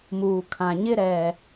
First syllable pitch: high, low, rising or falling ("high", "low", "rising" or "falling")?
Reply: low